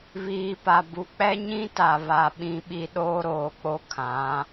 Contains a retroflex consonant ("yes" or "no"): no